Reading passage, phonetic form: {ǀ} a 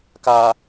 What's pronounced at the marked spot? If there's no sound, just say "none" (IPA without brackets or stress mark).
k